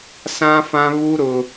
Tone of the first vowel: high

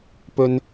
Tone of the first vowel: low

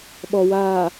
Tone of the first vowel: low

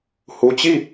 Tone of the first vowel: low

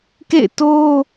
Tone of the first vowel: falling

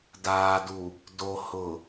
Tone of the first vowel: low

